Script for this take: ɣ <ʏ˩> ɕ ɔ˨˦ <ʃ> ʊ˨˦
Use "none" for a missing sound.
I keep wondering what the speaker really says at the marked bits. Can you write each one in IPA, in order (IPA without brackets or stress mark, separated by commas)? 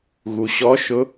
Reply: u˩, ʃ